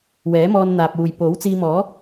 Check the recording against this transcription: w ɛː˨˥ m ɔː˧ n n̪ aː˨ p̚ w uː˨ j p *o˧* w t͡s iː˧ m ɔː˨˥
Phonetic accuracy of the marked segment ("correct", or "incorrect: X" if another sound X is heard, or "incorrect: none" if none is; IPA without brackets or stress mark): incorrect: o˨˥